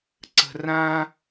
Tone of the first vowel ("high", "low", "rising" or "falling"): high